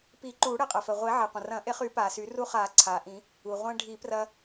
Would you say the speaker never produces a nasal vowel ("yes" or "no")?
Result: no